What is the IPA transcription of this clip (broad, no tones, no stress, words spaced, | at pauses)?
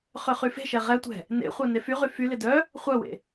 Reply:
χøχyfe̤ʃɛ ʁɛtʷɛ̤ | nḛχʷœ nefyʁy fylɪ dœ | χʷœwḛ